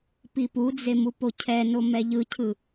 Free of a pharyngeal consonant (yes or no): yes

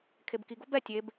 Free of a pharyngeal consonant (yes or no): yes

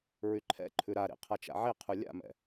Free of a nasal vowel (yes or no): yes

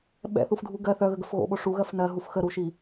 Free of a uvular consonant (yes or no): yes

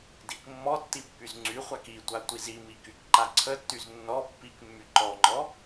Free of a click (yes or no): no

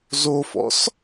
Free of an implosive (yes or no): yes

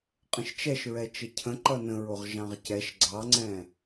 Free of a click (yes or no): no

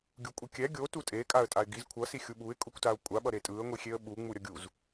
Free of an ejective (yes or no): no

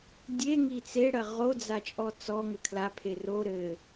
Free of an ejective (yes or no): no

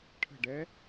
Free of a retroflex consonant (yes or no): no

